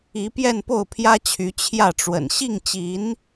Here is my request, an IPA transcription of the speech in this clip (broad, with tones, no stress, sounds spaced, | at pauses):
i˧˥ p j ɛ˥˧ n p o˥˩ ʊ̯ pʰ j ä˥ t͡ɕʰ y˧˥ t͡ɕʰ j ä˥˩ ʈ͡ʂ w ə̰˨˩ n ɕ i˥˩ ŋ t͡ɕ i˧˥ n